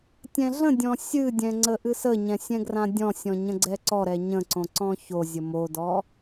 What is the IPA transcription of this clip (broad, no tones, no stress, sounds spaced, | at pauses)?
tʲ ɛ̃ ɮ ə̃ dʲ ɔ̃ sʲ ɨ dʲ ɛ̃ ŋ͡ǀ ə ʔ ɨ s ə ɲ ɛ̃ sʲ ɛ̃ ɡ r ã dʲ ɔ̃ sʲ ɔ̃ ɲ ə̃ ɡ͡ǀ ɛ ǀ ɔ ɾ ɛ ɲ ə̃ ǀ õ ǀ ɔ̃ ç o zʲ ə m o d ɔ